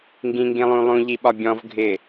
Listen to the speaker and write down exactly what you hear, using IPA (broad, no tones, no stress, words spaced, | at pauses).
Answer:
ŋɡĩŋɡĩlˠũlˠũ ʎiɓɒbʲɔ̃v ɡʱɪ